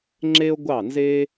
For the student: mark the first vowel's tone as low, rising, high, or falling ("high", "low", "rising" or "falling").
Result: high